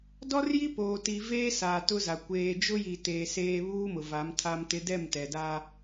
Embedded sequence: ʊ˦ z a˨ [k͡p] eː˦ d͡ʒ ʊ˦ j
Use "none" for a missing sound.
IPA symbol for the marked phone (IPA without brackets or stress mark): kʷ